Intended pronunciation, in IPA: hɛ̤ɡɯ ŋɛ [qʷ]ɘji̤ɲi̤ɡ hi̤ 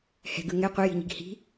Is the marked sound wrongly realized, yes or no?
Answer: no